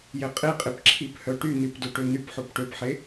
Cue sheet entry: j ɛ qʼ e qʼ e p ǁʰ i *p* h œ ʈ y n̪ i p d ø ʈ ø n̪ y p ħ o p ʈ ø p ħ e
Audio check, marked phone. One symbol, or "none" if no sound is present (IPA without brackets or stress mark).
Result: p